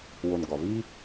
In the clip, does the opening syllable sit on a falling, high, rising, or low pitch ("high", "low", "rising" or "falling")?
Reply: low